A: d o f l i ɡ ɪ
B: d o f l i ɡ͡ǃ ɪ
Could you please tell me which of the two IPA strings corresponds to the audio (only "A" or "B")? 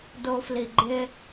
B